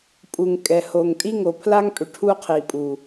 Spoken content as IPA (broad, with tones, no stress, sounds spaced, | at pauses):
pʼ u˨ ŋ kʼ ɛ˨ h o˨ ŋ tʼ i˦ ŋ o˨ pʰ l a˦ ŋ pʼ ʏ˨ ʈʰ u˦ qʰ i˨ pʼ u˨